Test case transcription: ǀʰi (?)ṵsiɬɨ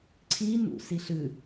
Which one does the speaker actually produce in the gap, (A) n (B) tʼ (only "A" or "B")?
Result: A